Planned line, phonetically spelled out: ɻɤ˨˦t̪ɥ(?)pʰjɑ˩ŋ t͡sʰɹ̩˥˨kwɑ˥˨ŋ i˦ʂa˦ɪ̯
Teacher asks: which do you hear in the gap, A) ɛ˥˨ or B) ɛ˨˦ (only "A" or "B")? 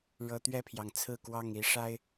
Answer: A